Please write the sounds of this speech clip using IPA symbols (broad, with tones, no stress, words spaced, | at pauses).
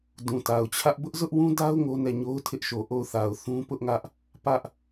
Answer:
dũ˨ta˨ʊ̯t͡ɕʰä˦ʔ bʊ˦ʔzʊ˦ʔwũ˦da˦ʊ̯ ŋo˦nɛ˦˨ ɲo˦ʊ̯tʰɪ˦ʔʃo˨ ʔo˦˨ʊ̯θa˨ʊ̯ θũ˦pʊ˦ʔŋä˦ʔ | pä˦ʔ